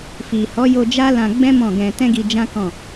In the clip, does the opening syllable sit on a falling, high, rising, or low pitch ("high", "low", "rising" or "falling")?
low